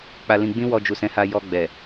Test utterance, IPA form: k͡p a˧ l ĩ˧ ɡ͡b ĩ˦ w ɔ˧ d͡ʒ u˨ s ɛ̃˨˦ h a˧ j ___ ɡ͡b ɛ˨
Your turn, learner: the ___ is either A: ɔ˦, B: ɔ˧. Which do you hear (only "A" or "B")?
B